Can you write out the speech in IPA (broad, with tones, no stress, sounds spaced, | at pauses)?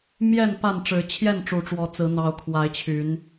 m j ɛ˥˨ n p a˥˨ n ʈ͡ʂ ɻ̩˨˦ t͡ɕʰ j ɛ˥˨ n ʈ͡ʂ u˨˩ ʈ͡ʂ w ɔ˨˦ t͡s ɹ̩˨˦ n̪ ɑ˨˦ ʊ̯ kʰ w a˨˦ ɪ̯ t͡ɕʰ y˨˦ n